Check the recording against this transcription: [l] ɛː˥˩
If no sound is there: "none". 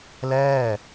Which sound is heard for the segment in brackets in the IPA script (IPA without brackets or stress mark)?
l